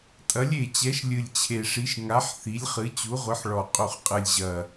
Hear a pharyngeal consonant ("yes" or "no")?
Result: yes